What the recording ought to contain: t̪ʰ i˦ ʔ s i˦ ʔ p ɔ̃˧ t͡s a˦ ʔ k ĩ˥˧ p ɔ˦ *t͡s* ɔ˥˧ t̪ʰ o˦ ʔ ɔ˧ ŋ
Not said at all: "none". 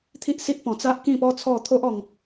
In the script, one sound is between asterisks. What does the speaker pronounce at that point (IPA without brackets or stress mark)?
t͡sʰ